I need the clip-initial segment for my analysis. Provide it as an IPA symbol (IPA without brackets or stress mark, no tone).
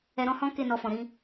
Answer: ɛ